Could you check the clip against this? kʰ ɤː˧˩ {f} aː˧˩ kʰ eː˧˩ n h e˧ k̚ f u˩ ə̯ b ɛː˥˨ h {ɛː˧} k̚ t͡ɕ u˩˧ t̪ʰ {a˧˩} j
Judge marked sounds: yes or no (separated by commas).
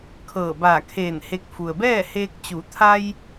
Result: no, no, no